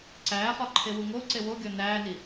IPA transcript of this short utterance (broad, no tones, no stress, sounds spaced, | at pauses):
ǀ æː χ ɒ ǃʰ e w u ŋ o ǀ e w o ɡʲ ɒ n æː n i